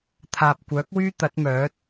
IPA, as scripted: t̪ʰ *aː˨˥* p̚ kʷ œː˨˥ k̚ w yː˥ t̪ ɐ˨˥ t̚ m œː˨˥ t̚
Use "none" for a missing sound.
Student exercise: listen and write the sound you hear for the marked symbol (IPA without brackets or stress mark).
aː˨